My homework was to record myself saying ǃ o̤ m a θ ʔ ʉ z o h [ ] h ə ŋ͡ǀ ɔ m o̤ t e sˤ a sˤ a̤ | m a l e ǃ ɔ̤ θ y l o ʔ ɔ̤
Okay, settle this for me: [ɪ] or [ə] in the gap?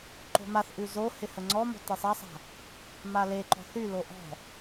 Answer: ɪ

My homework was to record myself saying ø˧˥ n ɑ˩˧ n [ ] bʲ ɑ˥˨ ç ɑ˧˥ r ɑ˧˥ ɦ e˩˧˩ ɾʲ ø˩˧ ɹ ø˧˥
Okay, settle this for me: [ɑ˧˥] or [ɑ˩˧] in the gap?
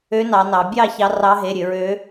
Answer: ɑ˩˧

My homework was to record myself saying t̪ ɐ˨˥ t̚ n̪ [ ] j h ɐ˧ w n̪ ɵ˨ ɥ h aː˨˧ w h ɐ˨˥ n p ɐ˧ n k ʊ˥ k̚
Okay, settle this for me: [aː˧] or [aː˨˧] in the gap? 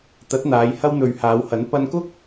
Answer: aː˨˧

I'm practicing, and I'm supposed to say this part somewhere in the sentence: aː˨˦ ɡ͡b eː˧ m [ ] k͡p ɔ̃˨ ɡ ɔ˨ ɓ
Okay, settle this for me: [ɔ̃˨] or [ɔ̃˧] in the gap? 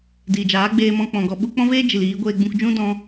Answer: ɔ̃˧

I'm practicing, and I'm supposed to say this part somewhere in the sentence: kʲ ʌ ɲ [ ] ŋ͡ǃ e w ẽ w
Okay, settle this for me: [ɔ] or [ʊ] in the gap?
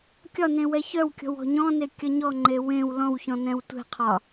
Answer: ɔ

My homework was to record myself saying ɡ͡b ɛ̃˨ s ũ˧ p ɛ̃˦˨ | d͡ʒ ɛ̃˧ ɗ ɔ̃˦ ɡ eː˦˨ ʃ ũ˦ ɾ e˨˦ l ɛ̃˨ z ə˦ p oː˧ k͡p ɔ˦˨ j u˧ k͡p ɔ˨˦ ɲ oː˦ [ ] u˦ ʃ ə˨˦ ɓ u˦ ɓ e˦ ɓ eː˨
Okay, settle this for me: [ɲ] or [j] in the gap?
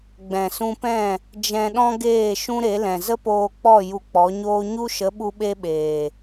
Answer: ɲ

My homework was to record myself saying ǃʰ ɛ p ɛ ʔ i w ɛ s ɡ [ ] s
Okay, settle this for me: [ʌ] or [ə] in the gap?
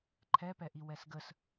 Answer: ə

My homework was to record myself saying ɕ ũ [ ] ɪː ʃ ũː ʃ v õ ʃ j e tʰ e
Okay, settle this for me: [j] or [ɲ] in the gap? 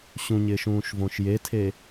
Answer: ɲ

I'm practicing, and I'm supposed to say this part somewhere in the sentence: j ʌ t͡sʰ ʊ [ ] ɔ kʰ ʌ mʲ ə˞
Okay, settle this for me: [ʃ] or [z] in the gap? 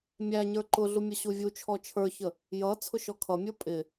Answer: ʃ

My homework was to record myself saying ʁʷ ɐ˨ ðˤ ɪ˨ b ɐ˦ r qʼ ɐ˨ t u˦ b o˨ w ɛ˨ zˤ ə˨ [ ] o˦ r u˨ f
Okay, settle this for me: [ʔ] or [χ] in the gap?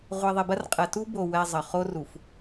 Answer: χ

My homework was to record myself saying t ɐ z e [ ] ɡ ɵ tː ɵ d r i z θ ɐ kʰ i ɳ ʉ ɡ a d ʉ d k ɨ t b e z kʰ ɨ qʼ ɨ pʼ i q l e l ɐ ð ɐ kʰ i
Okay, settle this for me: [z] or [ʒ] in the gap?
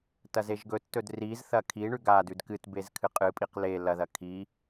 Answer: ʒ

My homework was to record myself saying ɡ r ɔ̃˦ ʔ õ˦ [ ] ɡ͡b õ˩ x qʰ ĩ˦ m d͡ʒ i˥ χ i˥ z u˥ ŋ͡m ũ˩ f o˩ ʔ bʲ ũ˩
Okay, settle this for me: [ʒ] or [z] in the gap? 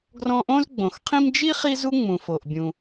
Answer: z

